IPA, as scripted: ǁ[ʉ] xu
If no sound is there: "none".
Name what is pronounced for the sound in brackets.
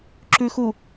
ʉ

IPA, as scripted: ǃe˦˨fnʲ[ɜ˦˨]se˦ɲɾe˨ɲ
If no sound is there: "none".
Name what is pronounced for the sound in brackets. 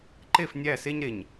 æ˦˨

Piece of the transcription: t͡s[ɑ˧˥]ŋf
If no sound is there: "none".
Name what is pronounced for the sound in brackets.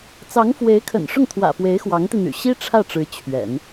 ɑ˧˥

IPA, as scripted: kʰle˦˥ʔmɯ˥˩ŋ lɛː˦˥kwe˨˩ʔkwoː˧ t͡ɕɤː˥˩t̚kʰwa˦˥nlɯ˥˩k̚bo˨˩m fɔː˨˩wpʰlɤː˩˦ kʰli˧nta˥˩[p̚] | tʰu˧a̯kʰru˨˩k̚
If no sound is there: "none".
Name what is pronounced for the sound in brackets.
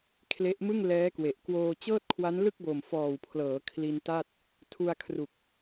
t̚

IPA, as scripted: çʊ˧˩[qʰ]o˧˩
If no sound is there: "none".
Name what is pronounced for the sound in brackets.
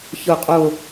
qʼ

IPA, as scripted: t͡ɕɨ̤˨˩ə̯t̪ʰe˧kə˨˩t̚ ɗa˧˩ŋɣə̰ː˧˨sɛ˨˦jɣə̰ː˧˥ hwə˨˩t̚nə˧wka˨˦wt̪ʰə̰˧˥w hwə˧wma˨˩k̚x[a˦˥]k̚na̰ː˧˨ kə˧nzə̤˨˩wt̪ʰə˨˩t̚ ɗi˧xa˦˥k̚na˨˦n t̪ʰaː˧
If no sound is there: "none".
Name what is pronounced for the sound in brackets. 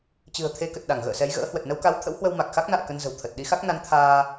a˦˥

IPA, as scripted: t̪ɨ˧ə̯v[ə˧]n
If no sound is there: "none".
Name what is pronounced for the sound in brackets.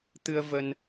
ə˧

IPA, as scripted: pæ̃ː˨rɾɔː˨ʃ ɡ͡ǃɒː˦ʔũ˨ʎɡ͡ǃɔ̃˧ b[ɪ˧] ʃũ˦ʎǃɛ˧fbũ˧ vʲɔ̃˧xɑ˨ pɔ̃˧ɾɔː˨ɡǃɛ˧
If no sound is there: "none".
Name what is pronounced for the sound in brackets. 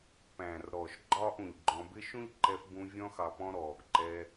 ɪ˧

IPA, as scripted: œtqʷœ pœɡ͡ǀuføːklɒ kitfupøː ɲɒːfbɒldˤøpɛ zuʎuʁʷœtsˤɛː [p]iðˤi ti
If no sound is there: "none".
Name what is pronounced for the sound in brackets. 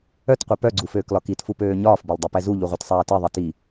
t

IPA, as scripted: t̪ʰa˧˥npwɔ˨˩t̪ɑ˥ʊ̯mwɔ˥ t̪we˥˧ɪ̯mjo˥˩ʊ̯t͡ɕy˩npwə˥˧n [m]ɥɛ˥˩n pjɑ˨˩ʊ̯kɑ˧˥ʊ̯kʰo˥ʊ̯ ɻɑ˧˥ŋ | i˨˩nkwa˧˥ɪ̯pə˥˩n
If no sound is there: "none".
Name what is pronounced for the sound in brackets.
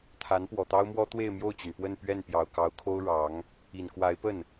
p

